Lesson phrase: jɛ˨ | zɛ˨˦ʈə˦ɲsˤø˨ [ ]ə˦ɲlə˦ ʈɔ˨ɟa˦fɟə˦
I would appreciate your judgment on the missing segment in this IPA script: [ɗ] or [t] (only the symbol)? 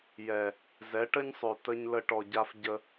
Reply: t